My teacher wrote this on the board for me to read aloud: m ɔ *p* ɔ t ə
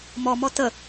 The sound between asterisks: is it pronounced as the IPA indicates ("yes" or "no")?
no